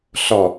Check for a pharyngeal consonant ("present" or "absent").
absent